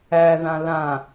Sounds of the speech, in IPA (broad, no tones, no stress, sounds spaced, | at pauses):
æ ð ã l ã